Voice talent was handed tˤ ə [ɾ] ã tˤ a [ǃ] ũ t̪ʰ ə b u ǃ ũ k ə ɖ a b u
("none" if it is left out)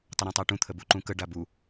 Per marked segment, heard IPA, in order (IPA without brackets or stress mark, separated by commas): ɾ, ʈ